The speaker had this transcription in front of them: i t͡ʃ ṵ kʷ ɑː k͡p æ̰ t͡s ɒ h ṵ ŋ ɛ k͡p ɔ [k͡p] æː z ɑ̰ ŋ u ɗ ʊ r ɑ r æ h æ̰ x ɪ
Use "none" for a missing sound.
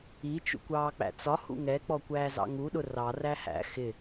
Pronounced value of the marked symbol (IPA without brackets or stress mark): kʷ